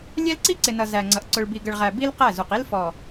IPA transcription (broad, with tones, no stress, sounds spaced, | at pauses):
lʲ ɛ˦ l ǀ i˦ ǀ ɪ˨ n ʌ˨ z æ˨ ŋ͡ǀ ʌ˨ ʔ ǀ ʊ˨ ɭ b i˨ ɡ ə˨ ɭ ʁ æ˨ b i˦ l q æ˦˨ z u˨ q i˦ l f ɔ˨